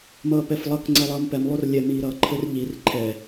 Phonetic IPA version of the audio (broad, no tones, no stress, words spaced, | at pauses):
mʌːpɛflˠʌk ŋ͡ǀɛlˠʌːmpɛm lˠorlʲɛ miːɾʌːǃʰɘr ʎir ǃʰɛ